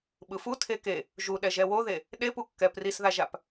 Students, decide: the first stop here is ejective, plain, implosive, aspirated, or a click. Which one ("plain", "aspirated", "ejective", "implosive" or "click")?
implosive